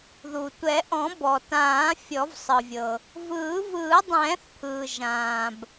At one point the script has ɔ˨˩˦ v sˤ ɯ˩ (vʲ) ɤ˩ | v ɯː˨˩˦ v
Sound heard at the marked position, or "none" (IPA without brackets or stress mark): vʲ